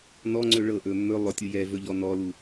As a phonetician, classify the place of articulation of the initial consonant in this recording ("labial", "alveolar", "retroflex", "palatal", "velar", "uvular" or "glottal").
alveolar